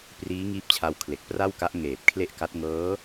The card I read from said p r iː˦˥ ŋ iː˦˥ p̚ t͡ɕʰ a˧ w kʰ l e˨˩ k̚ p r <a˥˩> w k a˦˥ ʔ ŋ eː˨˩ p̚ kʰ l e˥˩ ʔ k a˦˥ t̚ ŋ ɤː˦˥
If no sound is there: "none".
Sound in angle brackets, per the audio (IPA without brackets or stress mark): a˥˩